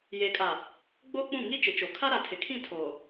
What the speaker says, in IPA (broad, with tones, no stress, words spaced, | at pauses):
je˨kʼa˨ | ɡ͡boː˦k͡pũ˦˨ ŋi˦ t͡ʃɪ˨˦t͡ʃo˨ kʰa˦ɾa˨tʰɪ˨kʰĩ˦˨ tʰoː˨